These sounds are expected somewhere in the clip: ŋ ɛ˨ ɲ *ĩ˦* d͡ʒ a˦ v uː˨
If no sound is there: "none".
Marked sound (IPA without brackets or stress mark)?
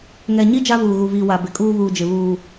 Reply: i˦